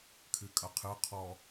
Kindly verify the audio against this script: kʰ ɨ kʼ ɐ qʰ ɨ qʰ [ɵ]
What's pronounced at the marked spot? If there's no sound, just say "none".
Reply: ɔ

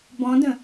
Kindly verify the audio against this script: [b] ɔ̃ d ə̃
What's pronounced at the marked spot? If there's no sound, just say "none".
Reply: b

